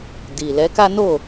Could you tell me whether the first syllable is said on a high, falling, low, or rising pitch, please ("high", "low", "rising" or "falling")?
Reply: low